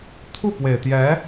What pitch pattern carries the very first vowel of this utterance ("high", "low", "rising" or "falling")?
falling